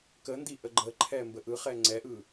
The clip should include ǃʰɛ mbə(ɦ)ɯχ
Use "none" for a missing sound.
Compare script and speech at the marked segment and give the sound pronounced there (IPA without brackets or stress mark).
ʔ